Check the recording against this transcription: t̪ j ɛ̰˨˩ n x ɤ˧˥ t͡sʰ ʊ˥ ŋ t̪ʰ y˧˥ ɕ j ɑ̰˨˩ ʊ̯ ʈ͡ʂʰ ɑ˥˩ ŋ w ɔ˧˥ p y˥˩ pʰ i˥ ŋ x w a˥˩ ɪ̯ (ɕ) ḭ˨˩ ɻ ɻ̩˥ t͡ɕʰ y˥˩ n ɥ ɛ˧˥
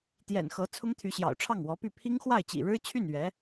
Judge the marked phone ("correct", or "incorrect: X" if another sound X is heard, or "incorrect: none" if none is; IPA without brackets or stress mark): incorrect: t͡ɕ